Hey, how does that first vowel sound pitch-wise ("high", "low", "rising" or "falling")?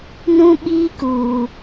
high